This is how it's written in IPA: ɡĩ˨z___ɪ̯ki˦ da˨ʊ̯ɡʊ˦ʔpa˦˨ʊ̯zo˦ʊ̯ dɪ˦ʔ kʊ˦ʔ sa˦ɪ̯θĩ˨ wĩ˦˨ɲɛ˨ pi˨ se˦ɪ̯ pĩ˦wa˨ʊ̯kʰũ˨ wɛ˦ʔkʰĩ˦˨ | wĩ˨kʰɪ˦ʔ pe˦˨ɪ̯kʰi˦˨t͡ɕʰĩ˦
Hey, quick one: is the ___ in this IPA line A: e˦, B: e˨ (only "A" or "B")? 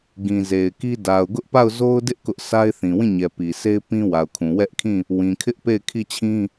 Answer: B